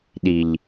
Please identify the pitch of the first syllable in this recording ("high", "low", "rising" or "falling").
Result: low